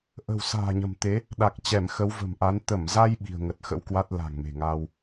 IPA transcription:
ʔə̤˨˩wsa̤ː˨˩ɲə̤˨˩m t̪e˨˦ | ɗa˨˩k̚t͡ɕɛ˧˩m xə˨˦wvə̤˨˩mʔa˨˦n t̪ə˧˩mza˧j ɓi̤˨˩ə̯ŋə˨˩t̚xə̰˧˥wkwa˦˥t̚ la̤˨˩ŋme̤˨˩ŋaː˧w

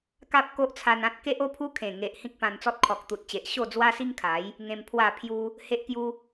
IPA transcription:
ka˦p̚ko˦ʔt͡sʰa˧n ã˦t̚ ke˦ʔo˦pʰu˦ kʰẽ˨˩ŋe˨ʔ hĩ˦k̚pã˧nt͡sɔ˦t̚ kʰɔ˨k̚t̪u˨t̚t͡ɕe˨ʔ ɕo˥˧d͡zwa˦si˦ŋkʰa˨˦j | ŋẽ˧mpʰwa˥˧ pʰju˦ | he˦ʔkju˦

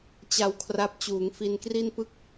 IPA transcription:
t͡ɕa˧wkʰra˦˥p̚ t͡ɕuː˩˦ŋfi˧nkri˥˩n pɯ˦˥k̚

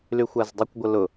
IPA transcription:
lyxʷazdˤykʷ ɡʷəlʊ

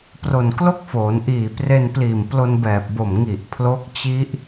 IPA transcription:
pro˨˩nklo˥˩k̚foː˩˦nʔiː˨˩ pre˧npliː˨˩m plo˧nbɛː˨˩p̚bo˨˩m ŋi˨˩ʔpʰlo˦˥k̚ t͡ɕi˦˥ʔ

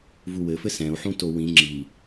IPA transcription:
vuwɘfɘ sɛ̃u̯ħũto wĩ ŋ͡ǁi

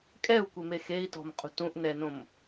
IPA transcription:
kʼɛu̯kʷeme xei̯tɔ̤mqʼṳ tũʔnɛnõm

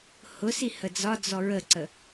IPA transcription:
hʊsi həd͡zɒd͡zɔ ɹəǀə

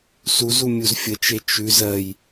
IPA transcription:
suzu mʲuzfʲət͡ʃe t͡ʃʉ zɜj

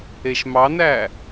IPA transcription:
eʃmɑnæ

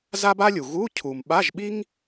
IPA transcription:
za˥ba˥lʲu˨ ɣu˧˥˧ cʰu˨m ɓa˧˥˧ʒɓi˥ŋ

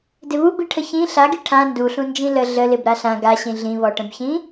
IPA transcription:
dɪβubiʈʰə çĩ ɬaɡi ʈʰã nduɬũnd͡ʒĩ lə ɮəlɪb ɾaɬã ɡaɕĩ ɮĩβɔʈə̃bçĩ

